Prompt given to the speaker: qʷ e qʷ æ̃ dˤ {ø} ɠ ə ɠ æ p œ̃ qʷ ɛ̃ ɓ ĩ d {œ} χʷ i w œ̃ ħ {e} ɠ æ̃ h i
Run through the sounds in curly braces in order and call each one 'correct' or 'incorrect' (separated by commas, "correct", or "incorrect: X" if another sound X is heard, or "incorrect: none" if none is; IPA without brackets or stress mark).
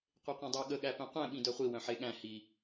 correct, correct, correct